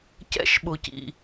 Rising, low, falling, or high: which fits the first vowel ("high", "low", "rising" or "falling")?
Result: high